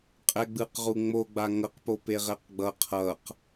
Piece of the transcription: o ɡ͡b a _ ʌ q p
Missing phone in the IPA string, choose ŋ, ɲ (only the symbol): ŋ